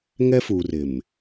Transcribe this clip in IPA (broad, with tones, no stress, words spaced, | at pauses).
ŋɛ˦fuː˨r ɪ˨m